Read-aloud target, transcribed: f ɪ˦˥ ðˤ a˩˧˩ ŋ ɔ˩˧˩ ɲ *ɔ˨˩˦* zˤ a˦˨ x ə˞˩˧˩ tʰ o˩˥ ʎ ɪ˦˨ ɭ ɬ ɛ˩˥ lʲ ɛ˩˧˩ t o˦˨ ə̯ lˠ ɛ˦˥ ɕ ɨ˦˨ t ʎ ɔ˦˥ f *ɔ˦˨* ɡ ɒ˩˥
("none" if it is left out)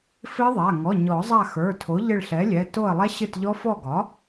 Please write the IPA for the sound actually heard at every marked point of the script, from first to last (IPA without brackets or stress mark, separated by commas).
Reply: ɔ˨˩˦, ɔ˦˨